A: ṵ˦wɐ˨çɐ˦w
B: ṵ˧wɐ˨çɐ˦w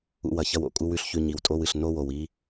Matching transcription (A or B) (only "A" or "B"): B